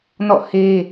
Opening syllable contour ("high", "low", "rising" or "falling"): falling